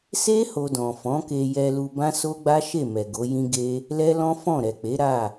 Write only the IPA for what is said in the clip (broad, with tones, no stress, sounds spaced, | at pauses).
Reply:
s e˦ h o˧ d ɔ̃˨ f ɔ̃˨˦ k e˧ j ɛ˧ l u˧ b ã˦ s o˦ ɡ͡b a˦ ʃ e˦˨ m ɛ˨ ɡ o˨˦ j ĩ˦ ɡ e˦ | l ɛ˦ l ɔ̃˦ f ɔ̃˦˨ ɾ ɛ˨ k͡p e˨˦ ɾ a˦˨